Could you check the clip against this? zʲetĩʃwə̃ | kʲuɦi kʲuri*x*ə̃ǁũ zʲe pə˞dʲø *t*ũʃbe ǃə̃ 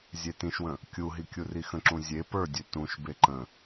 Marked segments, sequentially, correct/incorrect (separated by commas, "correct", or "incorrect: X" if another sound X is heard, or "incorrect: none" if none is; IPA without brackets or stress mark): correct, correct